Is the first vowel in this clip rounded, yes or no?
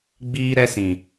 no